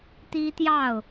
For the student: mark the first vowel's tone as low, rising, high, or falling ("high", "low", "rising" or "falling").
high